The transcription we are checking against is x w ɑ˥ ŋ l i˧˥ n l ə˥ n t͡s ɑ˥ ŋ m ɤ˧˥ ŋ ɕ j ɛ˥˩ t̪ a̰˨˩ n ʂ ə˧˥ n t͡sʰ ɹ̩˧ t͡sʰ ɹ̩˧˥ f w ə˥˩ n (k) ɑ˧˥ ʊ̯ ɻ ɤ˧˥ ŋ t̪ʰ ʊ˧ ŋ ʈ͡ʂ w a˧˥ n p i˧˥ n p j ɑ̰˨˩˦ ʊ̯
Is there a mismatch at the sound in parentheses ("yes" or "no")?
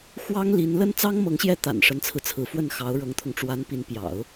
yes